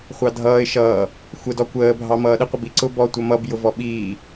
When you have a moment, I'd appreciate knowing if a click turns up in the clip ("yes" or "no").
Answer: yes